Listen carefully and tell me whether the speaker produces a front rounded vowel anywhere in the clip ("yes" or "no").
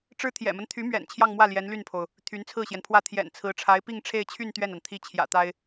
yes